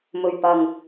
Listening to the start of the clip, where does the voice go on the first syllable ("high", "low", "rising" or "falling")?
low